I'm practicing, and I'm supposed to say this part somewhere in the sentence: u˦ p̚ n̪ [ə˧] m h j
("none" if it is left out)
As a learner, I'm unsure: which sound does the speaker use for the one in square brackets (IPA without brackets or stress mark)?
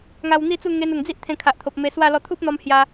ɔ˧